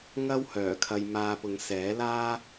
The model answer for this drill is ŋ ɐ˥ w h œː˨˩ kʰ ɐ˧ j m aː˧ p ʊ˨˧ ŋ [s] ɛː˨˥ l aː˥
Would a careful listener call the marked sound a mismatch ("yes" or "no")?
no